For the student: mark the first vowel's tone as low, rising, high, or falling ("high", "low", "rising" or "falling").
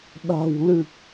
low